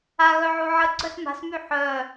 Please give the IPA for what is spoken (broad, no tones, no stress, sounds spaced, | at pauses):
a ɣ œ ʕ u ʕ ə ɡ͡ǀ œ s m a̤ s m y ħ œ